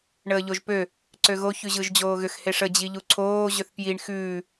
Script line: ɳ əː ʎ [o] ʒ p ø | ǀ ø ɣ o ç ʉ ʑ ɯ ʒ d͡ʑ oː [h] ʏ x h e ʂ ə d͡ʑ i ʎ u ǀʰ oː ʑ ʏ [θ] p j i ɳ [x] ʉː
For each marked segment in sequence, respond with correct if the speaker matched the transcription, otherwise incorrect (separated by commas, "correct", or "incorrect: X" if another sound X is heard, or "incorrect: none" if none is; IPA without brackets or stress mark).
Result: correct, incorrect: ɣ, correct, correct